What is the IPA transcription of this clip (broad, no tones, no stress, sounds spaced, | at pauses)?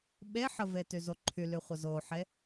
ɓ e ħ ə v e t y z o ǃʰ y l y χʷ ə z o ħ e